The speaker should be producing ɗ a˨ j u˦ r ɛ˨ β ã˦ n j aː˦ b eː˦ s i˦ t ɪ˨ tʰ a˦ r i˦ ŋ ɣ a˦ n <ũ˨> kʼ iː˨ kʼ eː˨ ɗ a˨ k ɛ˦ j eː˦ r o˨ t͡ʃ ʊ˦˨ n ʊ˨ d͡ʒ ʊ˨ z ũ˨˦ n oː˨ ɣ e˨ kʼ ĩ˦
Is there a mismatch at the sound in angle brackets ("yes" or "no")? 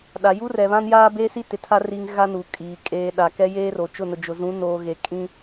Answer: yes